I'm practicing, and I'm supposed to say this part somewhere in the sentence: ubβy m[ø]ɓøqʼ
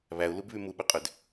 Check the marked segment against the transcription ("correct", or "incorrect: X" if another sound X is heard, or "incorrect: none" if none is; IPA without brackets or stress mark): incorrect: u